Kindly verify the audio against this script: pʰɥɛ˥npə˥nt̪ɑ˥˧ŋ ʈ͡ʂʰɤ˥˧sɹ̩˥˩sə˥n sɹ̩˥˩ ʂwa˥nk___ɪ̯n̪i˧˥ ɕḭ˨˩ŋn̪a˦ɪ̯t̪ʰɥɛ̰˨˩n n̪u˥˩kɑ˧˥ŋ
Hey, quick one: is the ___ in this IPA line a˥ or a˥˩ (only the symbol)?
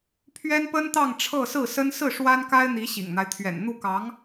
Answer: a˥